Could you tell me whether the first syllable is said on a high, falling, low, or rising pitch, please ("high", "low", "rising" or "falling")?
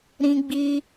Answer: high